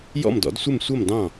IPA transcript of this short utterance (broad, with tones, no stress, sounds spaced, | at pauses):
j ɔ̰˥˨ m d ɔ̰˩˥ d sʷ ɪ˥˨ m sʷ ʌ˥˨ m d ɑ̃˥˨